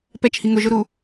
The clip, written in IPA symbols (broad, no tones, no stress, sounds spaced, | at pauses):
p ɛ t͡ʃ h i ŋ ʊ ʒ ʊ ɾ u